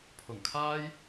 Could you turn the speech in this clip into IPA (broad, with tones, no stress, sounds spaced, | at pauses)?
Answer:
pʰ ʊ˨˩ ŋ kʰ aː˥ j